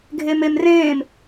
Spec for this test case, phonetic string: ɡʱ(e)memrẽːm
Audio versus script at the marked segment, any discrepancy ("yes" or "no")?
no